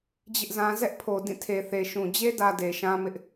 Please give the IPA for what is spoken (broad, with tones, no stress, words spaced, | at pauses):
d͡ʑɪ˦ʔzã˦ zɛ˦ʔpʰo˨ dĩ˦˨tʰe˨ θe˨ʃũ˨ d͡ʑe˦dä˨ de˨ʃã˦mɪ˦ʔ